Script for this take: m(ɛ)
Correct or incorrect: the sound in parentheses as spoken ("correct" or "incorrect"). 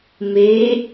incorrect